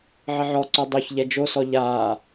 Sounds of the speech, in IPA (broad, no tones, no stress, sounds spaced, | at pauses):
ʕ ə ʕ ɔ ǀ o dˤ o ç ʎ ɛ d͡ʒ o s ɔ ʎ aː